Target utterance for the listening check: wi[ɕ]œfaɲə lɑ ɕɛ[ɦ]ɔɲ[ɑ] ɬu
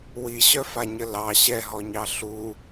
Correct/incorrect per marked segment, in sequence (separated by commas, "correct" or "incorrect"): correct, correct, correct